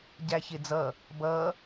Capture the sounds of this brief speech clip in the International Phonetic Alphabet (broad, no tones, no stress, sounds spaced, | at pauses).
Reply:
ɟ æ ç ɪː d͡z ʌ | b ʌː